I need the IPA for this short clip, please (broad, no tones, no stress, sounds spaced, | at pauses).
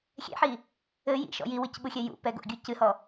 xʲ ɛ̰ ħ i | ɘ j ḭ ʃ ɔ̰ j i w ɨ c ɓ u xʲ ɛ j ṵ p ɛ ɡ o̰ ɡʲ u c ɨ h ɔ